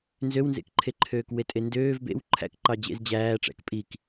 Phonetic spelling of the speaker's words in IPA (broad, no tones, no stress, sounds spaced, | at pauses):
n z ø w n z ḛ k ǃʰ e ǃʰ øː k w e tʼ e n d øː v b ḛ w ǃʰ æ̰ k ǃ ɑ d͡ʑ ḛ z d͡ʑ æː ʈ͡ʂ æ̰ k pʼ i k